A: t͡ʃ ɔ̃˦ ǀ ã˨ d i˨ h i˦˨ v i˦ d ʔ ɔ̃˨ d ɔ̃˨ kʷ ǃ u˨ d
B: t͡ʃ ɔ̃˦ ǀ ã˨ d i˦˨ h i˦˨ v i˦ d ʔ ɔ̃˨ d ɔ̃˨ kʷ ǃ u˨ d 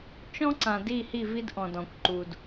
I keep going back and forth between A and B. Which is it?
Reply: B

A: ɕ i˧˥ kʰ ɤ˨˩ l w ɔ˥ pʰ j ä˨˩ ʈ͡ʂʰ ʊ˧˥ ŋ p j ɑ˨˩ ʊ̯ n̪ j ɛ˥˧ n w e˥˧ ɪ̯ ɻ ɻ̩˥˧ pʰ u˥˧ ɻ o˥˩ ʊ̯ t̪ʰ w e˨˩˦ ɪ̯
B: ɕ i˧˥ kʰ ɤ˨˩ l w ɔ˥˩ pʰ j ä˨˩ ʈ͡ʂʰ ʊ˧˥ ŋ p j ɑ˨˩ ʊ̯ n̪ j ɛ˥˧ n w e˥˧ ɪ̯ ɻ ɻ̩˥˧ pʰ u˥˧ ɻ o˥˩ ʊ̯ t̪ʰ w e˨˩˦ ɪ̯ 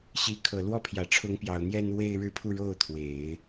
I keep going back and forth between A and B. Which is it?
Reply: B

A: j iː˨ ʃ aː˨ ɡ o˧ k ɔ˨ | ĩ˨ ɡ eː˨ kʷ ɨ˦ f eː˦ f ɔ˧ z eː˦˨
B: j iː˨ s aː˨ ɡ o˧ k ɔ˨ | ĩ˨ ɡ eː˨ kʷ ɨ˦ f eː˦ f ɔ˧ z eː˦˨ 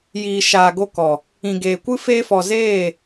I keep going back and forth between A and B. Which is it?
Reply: A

